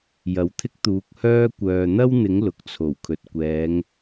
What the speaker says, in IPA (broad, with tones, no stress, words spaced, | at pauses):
jɐ˨˥wt̪ʰɪ˥k̚t̪uː˨˥k̚hœː˥ kʷœː˨n̪ɐ˥wn̪ɪ˨˥ŋ lʊ˨k̚t͡sʰo˨˩w kʰɵ˨t̚ kʷɛː˨˧ŋ